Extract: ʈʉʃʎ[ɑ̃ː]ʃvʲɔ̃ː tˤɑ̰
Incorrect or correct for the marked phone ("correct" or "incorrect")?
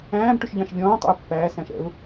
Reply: incorrect